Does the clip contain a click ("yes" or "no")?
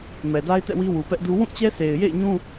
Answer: no